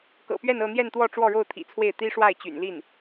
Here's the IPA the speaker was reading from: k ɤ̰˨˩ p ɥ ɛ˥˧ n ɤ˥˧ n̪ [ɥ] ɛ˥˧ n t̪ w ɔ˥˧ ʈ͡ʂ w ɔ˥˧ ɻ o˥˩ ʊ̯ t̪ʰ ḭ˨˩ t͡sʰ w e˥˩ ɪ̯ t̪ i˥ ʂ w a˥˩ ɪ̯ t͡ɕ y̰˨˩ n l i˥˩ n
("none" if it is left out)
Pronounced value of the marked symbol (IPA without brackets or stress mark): j